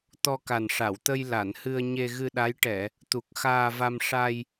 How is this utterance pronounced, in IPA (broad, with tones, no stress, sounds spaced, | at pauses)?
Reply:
t̪ ɔ˧ k a˨˩ n ʂ a˨˩˨ w t̪ ə˧ j l a˨˩˨ n h ɨ˧ ə̯ ɲ e˧ ɣ ɨ˧ ɗ a˧˥ j ʈ ɛ˨˩˨ | t̪ u˨˩ k̚ x aː˧ v a˧ m ʂ a˧ j